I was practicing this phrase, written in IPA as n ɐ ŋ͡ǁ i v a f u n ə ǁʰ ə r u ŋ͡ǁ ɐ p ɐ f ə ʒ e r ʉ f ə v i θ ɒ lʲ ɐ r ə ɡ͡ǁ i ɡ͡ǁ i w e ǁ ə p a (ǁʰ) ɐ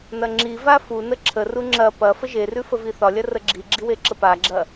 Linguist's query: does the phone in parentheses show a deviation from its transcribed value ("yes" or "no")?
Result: yes